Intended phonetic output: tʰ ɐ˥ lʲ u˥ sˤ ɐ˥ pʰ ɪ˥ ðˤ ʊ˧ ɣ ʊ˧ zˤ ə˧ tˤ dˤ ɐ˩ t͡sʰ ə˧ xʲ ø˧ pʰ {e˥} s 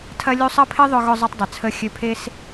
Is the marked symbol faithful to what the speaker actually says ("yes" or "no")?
yes